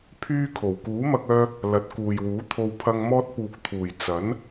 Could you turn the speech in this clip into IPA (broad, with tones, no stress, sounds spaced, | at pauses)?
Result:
pʰ yː˧ kʰ o˨˩ w k uː˨˥ m ɐ˧ k̚ œː˧ | l ɐ˨˥ t̚ k uː˨ j w uː˨˥ t̪ʰ o˧ w pʰ ɐ˧ ŋ m ɔː˧ t̚ p uː˨ k̚ t̪ʰ uː˨˩ j t͡s ɐ˨˥ n